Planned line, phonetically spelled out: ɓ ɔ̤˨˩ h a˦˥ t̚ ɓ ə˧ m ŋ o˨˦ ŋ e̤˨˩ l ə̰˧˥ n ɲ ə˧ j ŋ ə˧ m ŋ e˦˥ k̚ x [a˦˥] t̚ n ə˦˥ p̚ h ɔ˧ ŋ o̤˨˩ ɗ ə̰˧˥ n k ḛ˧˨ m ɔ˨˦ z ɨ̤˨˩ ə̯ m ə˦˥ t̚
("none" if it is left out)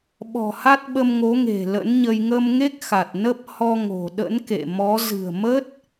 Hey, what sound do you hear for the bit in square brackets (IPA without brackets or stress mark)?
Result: a˨˩